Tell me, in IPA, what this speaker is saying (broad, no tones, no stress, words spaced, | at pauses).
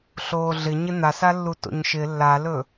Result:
ɬoːɮɪɲɪ n̪asalːu to̰ɲʃɪ lːalɵ